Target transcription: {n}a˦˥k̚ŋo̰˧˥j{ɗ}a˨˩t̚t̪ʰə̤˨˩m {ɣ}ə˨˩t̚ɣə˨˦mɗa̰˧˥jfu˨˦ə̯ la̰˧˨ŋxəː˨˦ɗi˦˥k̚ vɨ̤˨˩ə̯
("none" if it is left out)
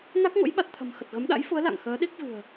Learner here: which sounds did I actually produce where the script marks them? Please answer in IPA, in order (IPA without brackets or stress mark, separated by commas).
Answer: n, ɓ, x